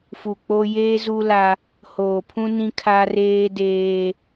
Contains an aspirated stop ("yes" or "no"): yes